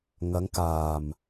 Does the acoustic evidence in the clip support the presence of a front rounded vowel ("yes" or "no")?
no